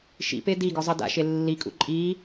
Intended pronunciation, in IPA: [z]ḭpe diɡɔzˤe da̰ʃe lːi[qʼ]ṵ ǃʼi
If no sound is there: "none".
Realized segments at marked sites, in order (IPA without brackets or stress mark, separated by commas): ʃ, kʼ